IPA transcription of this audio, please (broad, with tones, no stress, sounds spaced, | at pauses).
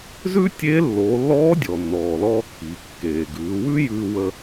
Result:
z ʉ˥ tʲ eː˧˥ lː oː˩˧ lː ɔː˧˥ dʲ ɔ˩ nː ɔː˩ l ɔː˧ kː iː˩ kː eː˩ ɡ ʉː˩˧ w ʉ˥ j ʉː˧ w ə˧